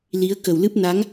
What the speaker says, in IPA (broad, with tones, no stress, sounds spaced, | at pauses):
l i˨˦ ə̯ k ə˨˩ w l ɨ˦˥ p̚ n a˨˦ ŋ